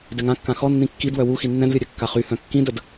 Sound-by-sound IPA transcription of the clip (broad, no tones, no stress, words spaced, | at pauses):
dɛŋãkːã xɔ nːĩkːidwœ wu xinːɛ̃dlʲœ ɾʲœkːaχyhœ̃ kːĩdəd